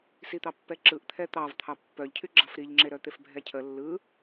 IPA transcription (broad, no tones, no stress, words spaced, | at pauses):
sit̪ɑpːɛǁɯʔ t̪ʰɛt̪ɑv t̪ʰɑpːœʎcʰyɡ͡ǁɑf ɾiʎŋ͡ǁeɾœt̪ef bʱɛcʰə lːɯ